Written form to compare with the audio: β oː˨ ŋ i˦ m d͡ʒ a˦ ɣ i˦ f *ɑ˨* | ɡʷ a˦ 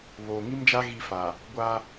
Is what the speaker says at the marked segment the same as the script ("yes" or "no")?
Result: no